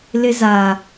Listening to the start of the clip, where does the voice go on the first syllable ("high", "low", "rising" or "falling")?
high